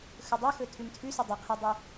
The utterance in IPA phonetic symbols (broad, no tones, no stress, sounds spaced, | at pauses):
x ɵ dˤ o x ɵ tʰ ʉ m tʰ ʉ s u dˤ ɵ qʰ e dˤ ʉ